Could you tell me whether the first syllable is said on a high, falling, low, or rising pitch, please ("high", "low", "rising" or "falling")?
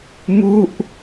falling